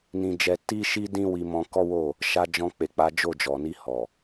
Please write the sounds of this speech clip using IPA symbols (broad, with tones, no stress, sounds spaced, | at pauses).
n ĩ˧ d͡ʒ ɛ˧ t i˦ ʃ i˦ d ĩ˦ w i˧ m ɔ̃˧ k ɔ˦ w o˦˨ | ʃ a˧ d͡ʒ ɔ̃˧ k͡p e˨ k͡p a˨˦ d͡ʒ o˦˨ d͡ʒ ɔ˨ n i˧ h ɔ˨